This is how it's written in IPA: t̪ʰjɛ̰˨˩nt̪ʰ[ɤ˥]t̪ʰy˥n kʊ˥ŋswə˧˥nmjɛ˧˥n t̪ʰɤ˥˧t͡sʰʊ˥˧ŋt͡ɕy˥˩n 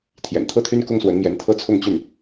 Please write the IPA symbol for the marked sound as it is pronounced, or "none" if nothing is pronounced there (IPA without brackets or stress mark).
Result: ɤ˥˩